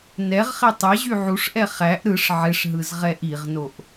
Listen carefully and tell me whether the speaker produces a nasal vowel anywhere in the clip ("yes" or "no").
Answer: no